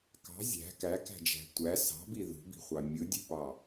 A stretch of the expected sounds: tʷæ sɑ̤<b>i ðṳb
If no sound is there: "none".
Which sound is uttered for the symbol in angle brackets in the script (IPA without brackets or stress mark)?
b